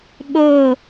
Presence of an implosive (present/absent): present